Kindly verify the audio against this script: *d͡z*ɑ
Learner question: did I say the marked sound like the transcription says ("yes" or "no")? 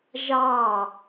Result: no